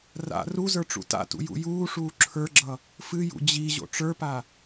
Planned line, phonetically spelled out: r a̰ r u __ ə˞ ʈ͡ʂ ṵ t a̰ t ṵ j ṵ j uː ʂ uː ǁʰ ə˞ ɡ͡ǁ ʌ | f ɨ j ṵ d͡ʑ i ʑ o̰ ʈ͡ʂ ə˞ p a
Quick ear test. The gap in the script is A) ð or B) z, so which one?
B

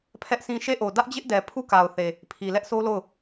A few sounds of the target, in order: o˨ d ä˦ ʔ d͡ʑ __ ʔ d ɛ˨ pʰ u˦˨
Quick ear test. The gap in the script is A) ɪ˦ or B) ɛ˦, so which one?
A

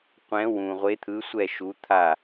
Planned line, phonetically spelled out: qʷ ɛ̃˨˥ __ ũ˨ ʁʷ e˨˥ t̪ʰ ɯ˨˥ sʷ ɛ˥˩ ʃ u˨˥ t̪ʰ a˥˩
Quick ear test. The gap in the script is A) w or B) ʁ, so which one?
A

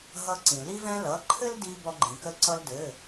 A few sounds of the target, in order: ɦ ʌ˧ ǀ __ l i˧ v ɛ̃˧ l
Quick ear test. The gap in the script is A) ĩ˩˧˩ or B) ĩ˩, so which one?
B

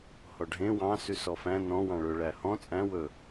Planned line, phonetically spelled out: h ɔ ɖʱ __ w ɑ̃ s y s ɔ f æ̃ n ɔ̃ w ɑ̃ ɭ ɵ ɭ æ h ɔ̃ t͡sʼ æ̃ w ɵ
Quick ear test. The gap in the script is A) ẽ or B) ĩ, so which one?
A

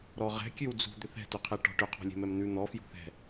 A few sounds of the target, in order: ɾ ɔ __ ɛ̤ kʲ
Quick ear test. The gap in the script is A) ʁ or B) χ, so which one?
A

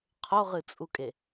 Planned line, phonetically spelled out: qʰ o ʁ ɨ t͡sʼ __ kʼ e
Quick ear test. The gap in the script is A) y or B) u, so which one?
B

